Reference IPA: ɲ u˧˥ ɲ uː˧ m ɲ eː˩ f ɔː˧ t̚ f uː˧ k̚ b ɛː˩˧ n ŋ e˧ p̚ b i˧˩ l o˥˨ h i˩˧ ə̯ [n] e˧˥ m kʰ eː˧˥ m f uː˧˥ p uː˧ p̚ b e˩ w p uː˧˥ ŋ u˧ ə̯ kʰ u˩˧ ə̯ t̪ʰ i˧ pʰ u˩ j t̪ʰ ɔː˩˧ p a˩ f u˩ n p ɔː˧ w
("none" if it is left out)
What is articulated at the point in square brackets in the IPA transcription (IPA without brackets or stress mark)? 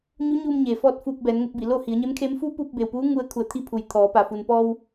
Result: ɲ